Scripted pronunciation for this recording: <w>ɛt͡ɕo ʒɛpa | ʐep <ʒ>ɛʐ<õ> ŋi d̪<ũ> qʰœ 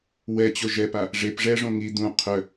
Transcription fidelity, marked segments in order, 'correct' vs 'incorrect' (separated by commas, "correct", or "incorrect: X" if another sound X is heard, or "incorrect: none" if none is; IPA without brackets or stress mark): correct, incorrect: ʐ, correct, correct